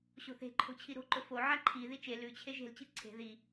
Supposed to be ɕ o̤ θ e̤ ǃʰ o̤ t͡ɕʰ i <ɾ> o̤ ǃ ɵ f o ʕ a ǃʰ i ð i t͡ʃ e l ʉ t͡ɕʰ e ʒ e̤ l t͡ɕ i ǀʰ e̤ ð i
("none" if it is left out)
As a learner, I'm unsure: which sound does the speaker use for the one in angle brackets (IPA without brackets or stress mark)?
ɾ